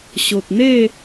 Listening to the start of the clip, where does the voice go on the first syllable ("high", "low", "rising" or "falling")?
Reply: low